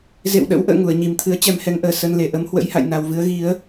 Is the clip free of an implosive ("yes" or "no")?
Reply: no